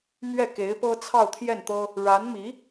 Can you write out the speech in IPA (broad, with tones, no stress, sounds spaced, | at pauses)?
m ɥ ɛ˥˩ k e˧˥ ɪ̯ p ɤ˥ t͡sʰ ɑ˥˧ ʊ̯ t̪ʰ j ɛ˥˩ n t̪ ɤ˥ | ɻ a˧˥ n m i˧˥